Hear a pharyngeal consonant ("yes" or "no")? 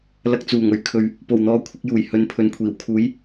no